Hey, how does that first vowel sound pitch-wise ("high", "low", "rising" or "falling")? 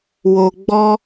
low